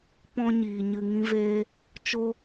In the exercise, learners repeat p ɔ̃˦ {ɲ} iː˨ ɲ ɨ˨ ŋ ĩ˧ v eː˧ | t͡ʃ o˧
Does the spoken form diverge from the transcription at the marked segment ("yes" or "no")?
no